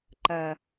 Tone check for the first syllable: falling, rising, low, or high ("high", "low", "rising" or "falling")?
low